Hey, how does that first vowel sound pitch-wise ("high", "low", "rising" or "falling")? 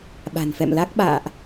low